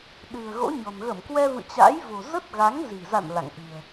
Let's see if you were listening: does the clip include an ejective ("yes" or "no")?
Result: no